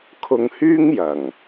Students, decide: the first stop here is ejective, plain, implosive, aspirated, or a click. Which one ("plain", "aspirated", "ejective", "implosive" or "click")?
aspirated